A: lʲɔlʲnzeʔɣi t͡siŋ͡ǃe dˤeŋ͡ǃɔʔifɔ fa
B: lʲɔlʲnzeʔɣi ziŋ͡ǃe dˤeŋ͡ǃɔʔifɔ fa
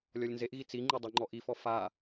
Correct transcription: A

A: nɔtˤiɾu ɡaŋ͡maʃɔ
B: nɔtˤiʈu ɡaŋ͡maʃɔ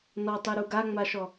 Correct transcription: A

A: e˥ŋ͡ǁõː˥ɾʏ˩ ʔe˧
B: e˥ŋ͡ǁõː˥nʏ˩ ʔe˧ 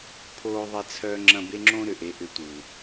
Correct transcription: A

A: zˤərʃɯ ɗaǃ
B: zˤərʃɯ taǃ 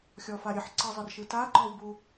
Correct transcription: B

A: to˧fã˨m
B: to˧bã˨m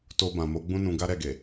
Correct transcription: B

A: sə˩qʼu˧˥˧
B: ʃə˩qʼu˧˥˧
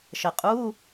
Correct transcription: B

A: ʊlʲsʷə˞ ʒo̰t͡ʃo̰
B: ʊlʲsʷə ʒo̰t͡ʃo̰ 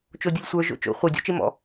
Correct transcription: A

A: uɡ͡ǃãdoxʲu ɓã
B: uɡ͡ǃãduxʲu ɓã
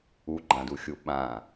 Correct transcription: B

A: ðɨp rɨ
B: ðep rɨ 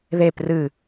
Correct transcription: B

